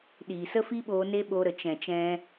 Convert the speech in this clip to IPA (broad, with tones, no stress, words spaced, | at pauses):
ɗiː˨sə˦fi˦ɓoː˧ ne˦ɓoː˧ɾə˨ t͡ʃɛ̃˨t͡ʃɛ̃˧